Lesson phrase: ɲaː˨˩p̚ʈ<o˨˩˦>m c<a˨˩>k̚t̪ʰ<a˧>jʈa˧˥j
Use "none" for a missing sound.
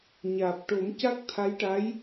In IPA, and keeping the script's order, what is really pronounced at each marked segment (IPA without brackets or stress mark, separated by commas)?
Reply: o˨˩˦, a˦˥, a˧˥